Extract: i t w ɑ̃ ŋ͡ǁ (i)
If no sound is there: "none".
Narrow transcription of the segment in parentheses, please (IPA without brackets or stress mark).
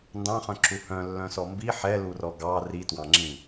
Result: ĩ